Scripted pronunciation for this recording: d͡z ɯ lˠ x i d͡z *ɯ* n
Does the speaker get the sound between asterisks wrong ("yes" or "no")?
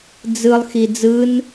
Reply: no